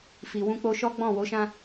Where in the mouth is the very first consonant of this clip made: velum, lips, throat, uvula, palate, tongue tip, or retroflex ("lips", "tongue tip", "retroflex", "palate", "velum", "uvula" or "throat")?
lips